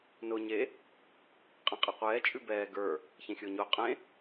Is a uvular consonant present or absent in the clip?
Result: present